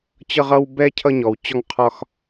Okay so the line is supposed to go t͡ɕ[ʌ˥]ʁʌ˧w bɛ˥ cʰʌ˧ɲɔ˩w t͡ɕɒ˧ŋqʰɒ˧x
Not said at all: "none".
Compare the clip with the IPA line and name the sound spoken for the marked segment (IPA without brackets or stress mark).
ʌ˧